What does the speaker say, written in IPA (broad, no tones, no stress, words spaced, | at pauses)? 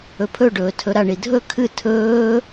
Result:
ɵpʰɵɖɵːtʰɵ ɾaɳidʱɵ kʰɨ tʰɵː